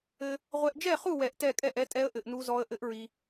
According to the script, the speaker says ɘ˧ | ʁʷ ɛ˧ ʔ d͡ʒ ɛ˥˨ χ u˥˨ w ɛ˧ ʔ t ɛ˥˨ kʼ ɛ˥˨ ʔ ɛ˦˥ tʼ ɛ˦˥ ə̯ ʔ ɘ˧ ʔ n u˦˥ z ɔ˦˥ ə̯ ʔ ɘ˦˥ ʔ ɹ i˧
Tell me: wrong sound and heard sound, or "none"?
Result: none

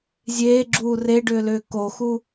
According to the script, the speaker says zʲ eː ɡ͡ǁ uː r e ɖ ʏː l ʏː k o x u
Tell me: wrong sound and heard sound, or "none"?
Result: none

